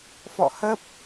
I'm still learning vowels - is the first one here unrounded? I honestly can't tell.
no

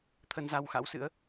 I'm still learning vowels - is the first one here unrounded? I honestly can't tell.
yes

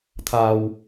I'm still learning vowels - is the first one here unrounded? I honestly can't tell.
yes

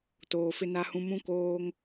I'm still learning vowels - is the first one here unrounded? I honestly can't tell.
no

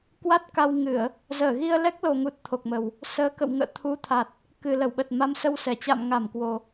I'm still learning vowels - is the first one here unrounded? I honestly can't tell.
yes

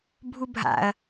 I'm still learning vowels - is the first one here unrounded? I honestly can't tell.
no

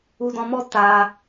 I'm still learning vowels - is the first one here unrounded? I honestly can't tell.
no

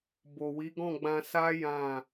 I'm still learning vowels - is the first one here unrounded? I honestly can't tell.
no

